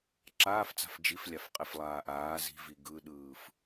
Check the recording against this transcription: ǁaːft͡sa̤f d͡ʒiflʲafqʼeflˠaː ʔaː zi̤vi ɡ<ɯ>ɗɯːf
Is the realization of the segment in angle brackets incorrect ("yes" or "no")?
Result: no